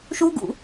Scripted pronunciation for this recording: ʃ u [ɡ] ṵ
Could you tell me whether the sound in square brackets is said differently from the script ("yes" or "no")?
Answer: no